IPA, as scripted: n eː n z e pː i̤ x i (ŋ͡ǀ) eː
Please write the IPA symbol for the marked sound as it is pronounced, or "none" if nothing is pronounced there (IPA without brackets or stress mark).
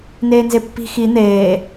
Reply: n̪